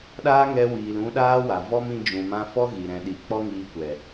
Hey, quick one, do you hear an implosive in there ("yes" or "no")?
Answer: yes